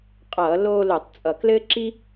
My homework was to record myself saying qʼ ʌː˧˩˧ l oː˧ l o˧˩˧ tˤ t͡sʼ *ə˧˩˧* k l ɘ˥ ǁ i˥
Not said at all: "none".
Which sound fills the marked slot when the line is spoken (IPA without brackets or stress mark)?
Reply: ʌ˧˩˧